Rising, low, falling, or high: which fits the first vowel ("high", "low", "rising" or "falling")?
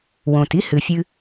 low